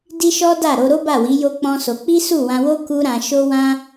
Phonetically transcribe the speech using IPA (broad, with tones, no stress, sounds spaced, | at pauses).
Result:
d i˦ ʃ ɔ˦ d a˦˨ ɾ o˧ ɾ o˦ b a˦˨ w i˨˦ j o˦ k͡p ɔ̃˦ s o˧ k͡p i˦ s u˦˨ w ã˧ w o˦ k u˦ ɾ ã˧ ʃ o˦ w ã˦